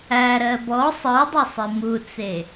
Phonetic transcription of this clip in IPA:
æ ɾ ɜ b ɔ sˤ ɯ dˤ ə sˤ i m u t͡s e

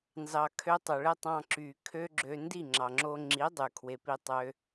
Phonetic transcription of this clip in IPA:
n z ɑ˨ kʰ ø˧ tˤ o˨ ɭ e˦ tˤ ɑ̃˧ ǁ y˨ kʰ ø˦ ɡ͡ǁ ø˧ n d i˦˨ ŋ͡ǁ ɑ˨ ŋ͡ǁ o˧ ŋ͡ǁ i˨˦ dˤ y˨ kʰ w e˧ p i˦ tˤ ø˦

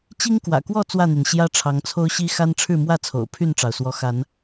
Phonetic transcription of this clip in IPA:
t͡ɕ i˦ ŋ k w ä̰˨˩ k w ɔ˥˨ t͡s w ä˥˨ n̪ y˩ n ɕ j ä˦ ʈ͡ʂʰ ɑ˨˦ ŋ t͡sʰ o˦ ʊ̯ ɕ i˦ x a˦ n ʈ͡ʂʰ ɻ̩˥˨ m w ä˥˨ t͡sʰ o̰˨˩ ʊ̯ pʰ y˥˨ n ʈ͡ʂ ɑ˩ ʊ̯ s w ɔ˨˦ x a˨˦ n

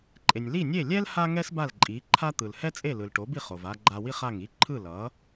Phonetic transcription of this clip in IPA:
ǃʼ e˩ nʲ l i˥˩ nʲ e˥˩ lʲ ɛ˥ l h a˥ ŋ ɛ˥ s b a˥˩ l ǃʼ i˩˥ ǃʰ a˥ t̪ ɯ˩ l h ɛ˥ t͡sʼ e˥˩ l ɯ˩ l ʈ o˩˥ b i˥˩ χ o˩ v a˧ ɡ͡ǃ a˧ w i˥ χ a˥˩ ŋ i˥ ǃʰ ɯ˥˩ l ʌ˩˥

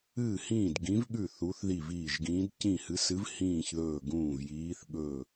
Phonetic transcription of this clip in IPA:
ɨː˧˩ h ĩː˧˩ d ɡ ĩ˨˦ v ɠ ʉ˧˩ θ u˨˦ θ ð i˧˩ v iː˧˩ ʒ ɡ ĩː˨˦ d c ĩ˧˩ h ɨ˨˦ s ɨ˨˦ v h ĩː˧˩ ç ð ɵː˧˩ ɡ ũː˧˩ v j iː˨˦ θ ɠ ɵ˧˩

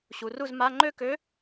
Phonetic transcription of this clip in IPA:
ɕ u˩˧ r u˥˨ z m a˧˥˧ ŋ͡ǃ ø˥˨ k ø˧˥

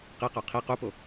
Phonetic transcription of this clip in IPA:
q i q ɔ qʰ i q u p o

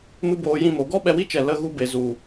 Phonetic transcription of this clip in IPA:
m ɨ˦ b oː˧ j ĩ˦˨ m o˨˦ ɡ ɔ˦ ɓ ɛ˧ w i˦ t͡ʃ ɛ˨ l ə˧ ɣ u˧ b e˨ z u˨

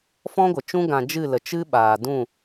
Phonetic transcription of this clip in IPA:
f ɔ̃˦ ɡʷ ə˨ t͡ʃ ũ˦ ɡ ã˧ d͡ʒ ɨ˦˨ l ə˨ t͡ʃ ɨ˦ ɓ aː˨ d ũ˦˨

